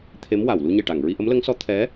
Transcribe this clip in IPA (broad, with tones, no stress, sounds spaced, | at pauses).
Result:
t̪ʰ e˧˥ m w a˨˩˨ w l u˧ ɲ e˨˩ ʈ a˨˩˨ ŋ ɹ i˧ ʔ ə˧˥ m l ə˧˥ ŋ s ɔ˧˥ t̪ʰ ɛ˧˥